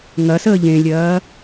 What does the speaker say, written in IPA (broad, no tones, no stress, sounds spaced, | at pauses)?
ŋ ɐ s əː ʎ ẽ lʲ ɐː